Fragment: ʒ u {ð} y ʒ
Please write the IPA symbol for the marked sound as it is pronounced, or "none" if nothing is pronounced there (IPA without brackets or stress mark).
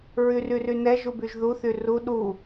b